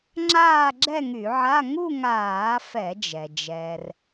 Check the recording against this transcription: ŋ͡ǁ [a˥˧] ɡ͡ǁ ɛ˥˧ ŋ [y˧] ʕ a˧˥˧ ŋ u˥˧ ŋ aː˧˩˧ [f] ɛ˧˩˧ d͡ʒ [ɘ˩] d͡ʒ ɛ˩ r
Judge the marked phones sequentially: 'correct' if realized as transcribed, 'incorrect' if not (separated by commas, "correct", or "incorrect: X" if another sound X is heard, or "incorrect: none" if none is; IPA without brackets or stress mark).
incorrect: aː˥˧, incorrect: y˧˩˧, correct, incorrect: ɛ˩